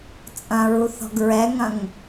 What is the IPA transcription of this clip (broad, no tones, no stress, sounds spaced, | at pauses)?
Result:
t͡sʼ ɐ̃ ɹ u θ ɔ̤ ɡ ɹ ɛ ŋ ɐ̃ ŋ